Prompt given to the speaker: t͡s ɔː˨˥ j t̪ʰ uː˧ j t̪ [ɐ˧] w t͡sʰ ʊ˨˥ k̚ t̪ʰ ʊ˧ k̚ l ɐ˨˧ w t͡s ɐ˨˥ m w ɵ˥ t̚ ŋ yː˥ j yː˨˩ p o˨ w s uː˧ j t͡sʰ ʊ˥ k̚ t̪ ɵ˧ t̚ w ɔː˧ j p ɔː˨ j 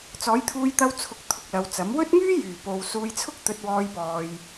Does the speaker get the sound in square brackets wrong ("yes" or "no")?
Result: no